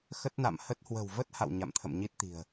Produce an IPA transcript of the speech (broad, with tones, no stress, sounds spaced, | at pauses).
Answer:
x ə˦˥ t̚ n a̰˧˨ m h ə˦˥ t̚ h w ə̤˨˩ w v ə˦˥ t̚ h a̰˧˨ w ɲ a̰˧˨ m t̪ʰ ə̰˧˨ m ɲ i˦˥ t̚ t̪ i̤˨˩ ə̯